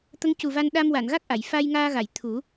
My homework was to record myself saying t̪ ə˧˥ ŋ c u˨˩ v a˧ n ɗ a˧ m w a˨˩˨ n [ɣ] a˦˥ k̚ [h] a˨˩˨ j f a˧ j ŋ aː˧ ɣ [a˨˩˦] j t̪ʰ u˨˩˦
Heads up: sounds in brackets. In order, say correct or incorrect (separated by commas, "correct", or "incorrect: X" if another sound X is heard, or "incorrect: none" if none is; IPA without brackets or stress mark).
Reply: correct, incorrect: ʔ, incorrect: a˨˩˨